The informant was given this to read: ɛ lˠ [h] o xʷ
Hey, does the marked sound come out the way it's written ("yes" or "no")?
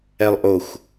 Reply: no